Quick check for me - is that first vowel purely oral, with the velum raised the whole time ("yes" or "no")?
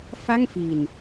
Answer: yes